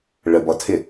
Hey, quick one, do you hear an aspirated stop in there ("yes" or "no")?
yes